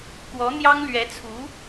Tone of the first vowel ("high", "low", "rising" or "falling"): rising